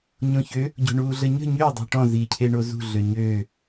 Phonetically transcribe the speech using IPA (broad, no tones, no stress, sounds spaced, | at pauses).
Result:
ɲ õ ç ø | ɟ o̤ ɳ uː ɮ ə ɲ ə̤ ɲ ø dˤ ṳ ʈ ɔ̃ z iː cʰ e ɳ o z ṳ ɮ ø ɲ øː